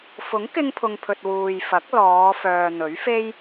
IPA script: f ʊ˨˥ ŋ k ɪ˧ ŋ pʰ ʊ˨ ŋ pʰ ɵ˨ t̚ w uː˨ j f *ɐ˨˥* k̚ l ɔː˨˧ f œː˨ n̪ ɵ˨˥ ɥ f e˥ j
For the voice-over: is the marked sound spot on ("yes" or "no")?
yes